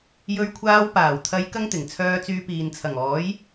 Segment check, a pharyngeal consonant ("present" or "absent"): absent